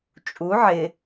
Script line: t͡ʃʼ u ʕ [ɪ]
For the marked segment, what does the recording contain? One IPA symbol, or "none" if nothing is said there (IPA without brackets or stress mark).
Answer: ɪ